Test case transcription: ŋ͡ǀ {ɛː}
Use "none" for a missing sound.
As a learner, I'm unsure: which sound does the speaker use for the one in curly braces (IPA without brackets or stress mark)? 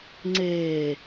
eː